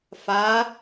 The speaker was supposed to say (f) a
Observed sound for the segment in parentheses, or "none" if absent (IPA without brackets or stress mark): f